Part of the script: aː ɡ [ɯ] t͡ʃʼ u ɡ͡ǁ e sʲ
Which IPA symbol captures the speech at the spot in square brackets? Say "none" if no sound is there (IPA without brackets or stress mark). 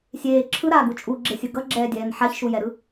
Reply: u